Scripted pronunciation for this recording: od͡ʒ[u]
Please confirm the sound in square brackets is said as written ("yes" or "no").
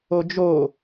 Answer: no